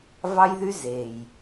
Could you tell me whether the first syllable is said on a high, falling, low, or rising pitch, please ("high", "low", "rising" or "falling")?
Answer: high